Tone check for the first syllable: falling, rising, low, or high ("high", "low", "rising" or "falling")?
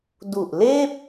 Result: low